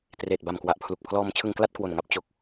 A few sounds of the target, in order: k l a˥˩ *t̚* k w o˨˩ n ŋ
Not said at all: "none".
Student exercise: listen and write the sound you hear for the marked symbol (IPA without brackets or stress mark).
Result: t̚